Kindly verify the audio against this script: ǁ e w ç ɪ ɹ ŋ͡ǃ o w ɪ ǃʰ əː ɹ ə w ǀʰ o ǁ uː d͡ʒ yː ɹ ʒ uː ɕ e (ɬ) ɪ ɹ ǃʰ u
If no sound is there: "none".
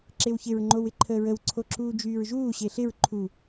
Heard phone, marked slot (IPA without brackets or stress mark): ɬ